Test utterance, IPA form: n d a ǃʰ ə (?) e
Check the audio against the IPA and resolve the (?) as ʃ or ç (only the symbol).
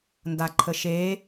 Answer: ʃ